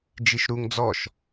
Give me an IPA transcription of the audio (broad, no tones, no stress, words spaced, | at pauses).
d͡ʒiʃɾuŋ d͡zɔʃ